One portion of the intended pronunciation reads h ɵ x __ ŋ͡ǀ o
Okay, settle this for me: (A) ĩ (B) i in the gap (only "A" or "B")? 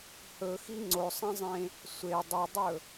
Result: B